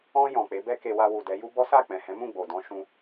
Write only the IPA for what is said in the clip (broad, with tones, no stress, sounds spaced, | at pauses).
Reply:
ɔ̃˧ j ɔ̃˨ k͡p e˨˦ b ɛ˦ k e˧ w a˧ w u˨ d ɛ˨˦ j u˦ b ɔ˦ s a˦˨ k͡p ɛ̃˨ h ɛ̃˨˦ m ũ˦˨ ɡ͡b o˨ d ɔ̃˧ ʃ ũ˦